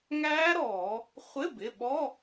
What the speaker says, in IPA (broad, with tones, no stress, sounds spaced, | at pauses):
ŋ æː˦˥ ɾ ɔː˧˩˧ | χʷ ɪ˧˥˧ b ɪ˩˧˩ ɓ ɔ˧˥˧